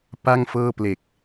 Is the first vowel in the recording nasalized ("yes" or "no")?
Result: no